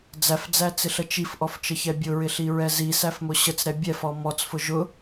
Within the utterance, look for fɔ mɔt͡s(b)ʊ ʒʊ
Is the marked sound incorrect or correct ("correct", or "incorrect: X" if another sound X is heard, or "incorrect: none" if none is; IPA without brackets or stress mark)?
incorrect: f